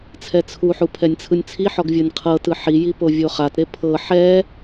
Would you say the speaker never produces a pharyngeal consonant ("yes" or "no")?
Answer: no